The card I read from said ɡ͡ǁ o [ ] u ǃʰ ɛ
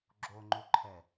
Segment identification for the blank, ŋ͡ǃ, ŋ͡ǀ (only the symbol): ŋ͡ǃ